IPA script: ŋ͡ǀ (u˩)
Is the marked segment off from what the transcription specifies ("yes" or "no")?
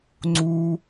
no